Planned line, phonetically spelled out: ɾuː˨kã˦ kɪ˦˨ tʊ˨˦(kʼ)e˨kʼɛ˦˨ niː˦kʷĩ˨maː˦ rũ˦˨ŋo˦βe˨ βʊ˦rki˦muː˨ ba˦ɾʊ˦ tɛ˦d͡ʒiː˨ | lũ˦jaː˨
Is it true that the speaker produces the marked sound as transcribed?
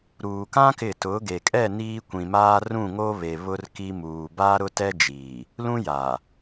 no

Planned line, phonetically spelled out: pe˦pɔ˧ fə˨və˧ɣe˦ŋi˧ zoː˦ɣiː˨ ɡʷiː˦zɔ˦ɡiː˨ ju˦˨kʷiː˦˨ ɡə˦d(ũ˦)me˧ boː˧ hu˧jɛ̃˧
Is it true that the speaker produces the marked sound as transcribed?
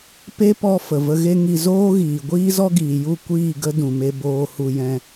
no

